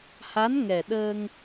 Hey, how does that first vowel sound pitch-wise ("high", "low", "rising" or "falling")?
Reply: rising